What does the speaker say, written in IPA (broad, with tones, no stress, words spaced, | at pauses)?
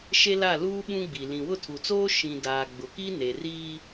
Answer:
ʃe˦la˦˨luː˦ ɓũ˦ɡ͡bi˨ lĩ˨wʊ˦˨tʰu˨t͡soː˦ ʃĩ˨ daː˨ɡ͡bʊ˨ki˦ ne˨riː˦